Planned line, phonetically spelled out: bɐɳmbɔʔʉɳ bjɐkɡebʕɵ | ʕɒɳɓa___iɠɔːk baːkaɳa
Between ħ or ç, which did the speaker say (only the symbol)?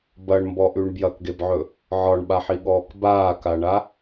ħ